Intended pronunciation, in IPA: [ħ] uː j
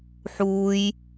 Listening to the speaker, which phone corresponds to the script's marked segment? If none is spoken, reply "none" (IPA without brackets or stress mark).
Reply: ħ